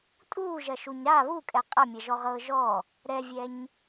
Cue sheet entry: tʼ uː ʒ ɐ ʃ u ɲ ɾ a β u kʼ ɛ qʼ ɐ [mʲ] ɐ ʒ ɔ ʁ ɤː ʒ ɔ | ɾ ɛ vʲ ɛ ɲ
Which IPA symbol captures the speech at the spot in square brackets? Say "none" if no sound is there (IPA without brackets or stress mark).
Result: mʲ